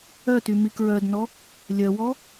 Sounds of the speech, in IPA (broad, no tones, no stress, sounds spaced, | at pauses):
œ t y m i k ɹ œ d n ɔ | lʲ œ w ɔ